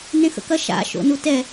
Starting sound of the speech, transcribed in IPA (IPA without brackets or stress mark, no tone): n